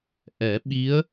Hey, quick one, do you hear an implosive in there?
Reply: yes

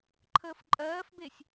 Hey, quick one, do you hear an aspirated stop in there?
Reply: yes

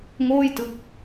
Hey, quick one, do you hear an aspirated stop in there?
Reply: no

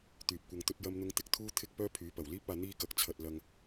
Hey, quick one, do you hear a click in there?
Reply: no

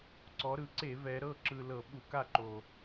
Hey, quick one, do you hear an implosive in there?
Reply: yes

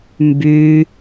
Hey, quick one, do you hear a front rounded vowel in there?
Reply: yes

